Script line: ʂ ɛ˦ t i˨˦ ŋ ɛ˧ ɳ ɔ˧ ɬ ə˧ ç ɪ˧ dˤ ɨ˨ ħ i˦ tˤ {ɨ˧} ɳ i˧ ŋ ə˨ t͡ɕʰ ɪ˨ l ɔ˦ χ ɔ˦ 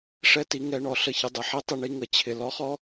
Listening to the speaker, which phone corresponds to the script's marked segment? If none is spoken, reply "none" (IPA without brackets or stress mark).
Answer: ɨ˧